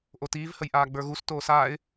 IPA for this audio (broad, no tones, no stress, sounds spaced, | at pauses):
ʔ o t iː v h ə j ʔ aː ɡ͡b ə˞ ɣ u s t oː s aː ɪ̯